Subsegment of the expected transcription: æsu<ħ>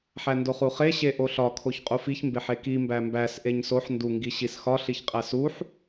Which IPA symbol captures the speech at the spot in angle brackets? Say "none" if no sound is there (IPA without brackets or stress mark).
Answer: ħ